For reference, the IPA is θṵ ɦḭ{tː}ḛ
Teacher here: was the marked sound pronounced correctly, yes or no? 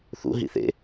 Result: no